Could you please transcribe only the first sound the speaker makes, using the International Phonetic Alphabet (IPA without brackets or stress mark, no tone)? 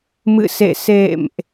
m